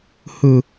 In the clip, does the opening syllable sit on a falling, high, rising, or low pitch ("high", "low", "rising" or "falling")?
high